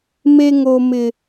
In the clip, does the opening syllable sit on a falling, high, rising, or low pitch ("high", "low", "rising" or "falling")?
high